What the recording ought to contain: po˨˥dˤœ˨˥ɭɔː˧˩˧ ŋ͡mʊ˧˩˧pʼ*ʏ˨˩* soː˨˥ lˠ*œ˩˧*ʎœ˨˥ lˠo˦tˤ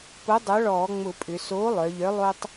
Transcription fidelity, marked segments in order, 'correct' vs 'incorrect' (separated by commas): incorrect, correct